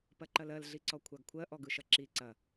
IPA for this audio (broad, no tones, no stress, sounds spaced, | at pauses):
p ɐ ǃ ɐ l ɜ l ɮ i ǀ ɔ kʷʰ a ɡ kʷʰ ɜ ʔ ɔ ɡ ɯ ʃ ɐ ǁ i ǀ ɐ